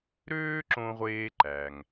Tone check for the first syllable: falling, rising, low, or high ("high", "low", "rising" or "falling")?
high